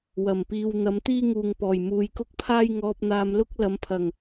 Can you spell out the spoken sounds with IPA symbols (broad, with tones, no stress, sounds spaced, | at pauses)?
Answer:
w ɐ˨˩ m p iː˨ w n̪ ɐ˨˧ m t̪ iː˥ ŋ uː˨ ŋ p ɔː˨˩ j m uː˨ j k ʊ˥ k̚ pʰ aː˥ j ŋ ɔː˧ p̚ n̪ aː˧ m l ʊ˥ k̚ l ɐ˨˧ m pʰ ɐ˨˩ ŋ